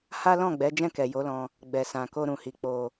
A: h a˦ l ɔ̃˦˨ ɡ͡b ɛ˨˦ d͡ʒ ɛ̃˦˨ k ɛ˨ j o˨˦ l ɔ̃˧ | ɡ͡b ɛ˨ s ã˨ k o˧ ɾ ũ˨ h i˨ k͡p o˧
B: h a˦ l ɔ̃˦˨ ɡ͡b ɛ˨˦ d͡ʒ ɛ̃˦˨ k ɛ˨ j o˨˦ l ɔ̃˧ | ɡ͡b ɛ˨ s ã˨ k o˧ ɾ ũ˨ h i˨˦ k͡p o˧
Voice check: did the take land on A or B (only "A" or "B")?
A